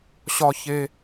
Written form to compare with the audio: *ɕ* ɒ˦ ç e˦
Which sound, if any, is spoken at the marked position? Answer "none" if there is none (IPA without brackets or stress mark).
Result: ɕ